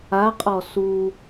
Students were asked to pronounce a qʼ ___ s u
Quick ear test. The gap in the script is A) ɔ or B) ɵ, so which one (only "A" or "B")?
A